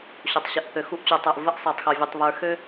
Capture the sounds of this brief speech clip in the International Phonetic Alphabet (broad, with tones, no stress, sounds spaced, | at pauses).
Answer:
ɕ o˨ tˤ ɕ ɘ˨ ʔ θ ø˨ x u˦ ʔ t͡ɕ u˨ tˤ ə˞˨ ʔ v ə˦ ʔ sˤ ə˞˨ tˤ x o˨ vʲ ə˨ tˤ β ə˞˨ x ø˦